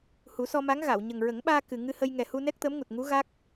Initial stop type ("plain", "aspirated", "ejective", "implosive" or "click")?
implosive